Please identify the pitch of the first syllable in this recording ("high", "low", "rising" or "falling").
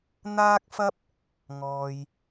high